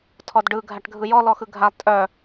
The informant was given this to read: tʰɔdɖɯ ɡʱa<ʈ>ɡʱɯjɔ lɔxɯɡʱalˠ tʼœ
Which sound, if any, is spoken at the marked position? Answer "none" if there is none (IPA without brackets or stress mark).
ʈ